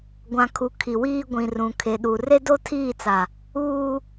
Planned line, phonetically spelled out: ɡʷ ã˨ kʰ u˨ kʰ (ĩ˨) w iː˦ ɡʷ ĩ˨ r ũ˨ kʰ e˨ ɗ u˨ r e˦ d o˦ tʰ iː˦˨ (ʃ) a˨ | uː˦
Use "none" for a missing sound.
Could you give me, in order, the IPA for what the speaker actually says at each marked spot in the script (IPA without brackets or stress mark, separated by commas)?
i˨, t͡s